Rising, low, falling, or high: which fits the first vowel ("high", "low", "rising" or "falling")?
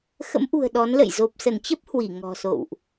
rising